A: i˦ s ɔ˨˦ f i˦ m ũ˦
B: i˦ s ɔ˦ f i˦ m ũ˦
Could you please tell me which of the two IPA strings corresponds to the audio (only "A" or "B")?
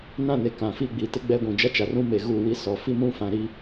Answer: A